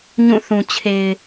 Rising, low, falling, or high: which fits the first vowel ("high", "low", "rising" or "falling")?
falling